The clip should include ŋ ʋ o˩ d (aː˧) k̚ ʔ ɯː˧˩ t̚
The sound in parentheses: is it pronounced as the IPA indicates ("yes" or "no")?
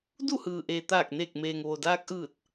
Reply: yes